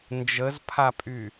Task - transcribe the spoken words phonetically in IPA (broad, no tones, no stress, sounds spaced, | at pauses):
n d͡ʒ ə z pʰ a pʼ y